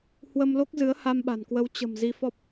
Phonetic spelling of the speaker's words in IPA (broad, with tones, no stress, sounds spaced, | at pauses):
h w ə˧ m l o˦˥ k̚ z ɨ˨˦ ə̯ h a˧ m ɓ a̤˨˩ n k w ə˨˦ w t͡ɕ ə̤˨˩ m z i˧ f ɔ˦˥ p̚